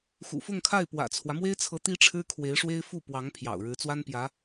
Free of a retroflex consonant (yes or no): no